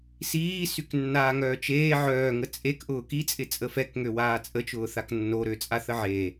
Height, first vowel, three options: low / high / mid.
high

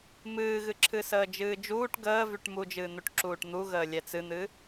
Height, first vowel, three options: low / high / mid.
high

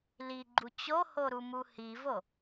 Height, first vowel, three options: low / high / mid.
high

